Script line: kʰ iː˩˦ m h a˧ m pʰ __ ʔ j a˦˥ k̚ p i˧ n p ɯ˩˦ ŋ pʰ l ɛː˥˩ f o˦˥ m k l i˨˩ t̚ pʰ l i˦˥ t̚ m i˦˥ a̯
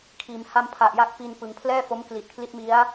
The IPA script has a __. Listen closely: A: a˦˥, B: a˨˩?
B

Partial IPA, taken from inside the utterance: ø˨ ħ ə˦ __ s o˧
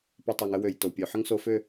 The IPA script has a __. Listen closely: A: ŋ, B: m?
A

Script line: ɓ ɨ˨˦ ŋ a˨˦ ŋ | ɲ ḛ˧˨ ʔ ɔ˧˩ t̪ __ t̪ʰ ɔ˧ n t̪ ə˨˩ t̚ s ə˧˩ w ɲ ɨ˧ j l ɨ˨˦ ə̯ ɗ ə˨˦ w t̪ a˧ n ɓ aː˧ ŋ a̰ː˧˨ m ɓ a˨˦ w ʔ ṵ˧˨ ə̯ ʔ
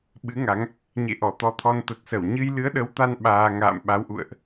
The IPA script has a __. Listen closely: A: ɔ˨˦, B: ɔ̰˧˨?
A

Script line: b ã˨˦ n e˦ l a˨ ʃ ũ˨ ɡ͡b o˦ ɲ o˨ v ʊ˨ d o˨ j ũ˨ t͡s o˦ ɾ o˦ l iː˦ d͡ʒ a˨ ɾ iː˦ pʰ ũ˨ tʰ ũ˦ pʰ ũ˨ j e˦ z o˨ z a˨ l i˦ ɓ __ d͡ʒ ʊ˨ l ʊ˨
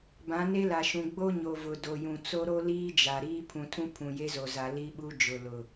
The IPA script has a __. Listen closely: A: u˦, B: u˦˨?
A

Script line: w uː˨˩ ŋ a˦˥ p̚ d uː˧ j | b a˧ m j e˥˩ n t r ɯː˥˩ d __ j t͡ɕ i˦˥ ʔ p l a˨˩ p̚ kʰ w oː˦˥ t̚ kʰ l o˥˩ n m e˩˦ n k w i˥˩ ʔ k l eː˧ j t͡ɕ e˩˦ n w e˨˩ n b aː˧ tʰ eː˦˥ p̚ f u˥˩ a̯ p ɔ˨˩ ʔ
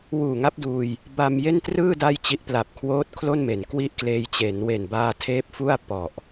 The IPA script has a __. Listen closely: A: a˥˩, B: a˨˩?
A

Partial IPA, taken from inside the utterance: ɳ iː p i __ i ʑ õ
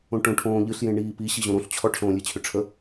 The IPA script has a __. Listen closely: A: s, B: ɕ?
B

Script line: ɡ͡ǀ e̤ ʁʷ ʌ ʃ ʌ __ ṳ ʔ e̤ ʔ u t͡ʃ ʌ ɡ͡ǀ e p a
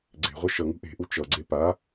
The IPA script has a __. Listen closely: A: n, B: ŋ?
B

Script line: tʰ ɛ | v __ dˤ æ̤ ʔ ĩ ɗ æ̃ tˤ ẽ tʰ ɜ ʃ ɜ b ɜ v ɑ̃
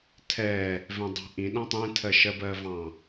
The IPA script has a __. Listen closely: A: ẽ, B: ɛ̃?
B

